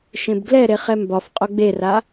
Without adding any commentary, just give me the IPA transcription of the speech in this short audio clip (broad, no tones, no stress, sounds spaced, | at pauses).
ʃ ẽ b ɡ l ɛ ɾ e χ ɛ m b ɒ f qʼ o ɡ͡b e r a